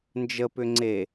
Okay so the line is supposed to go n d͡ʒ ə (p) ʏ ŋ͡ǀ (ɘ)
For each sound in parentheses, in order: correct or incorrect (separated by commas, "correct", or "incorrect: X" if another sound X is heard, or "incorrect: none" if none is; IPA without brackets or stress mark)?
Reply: correct, incorrect: e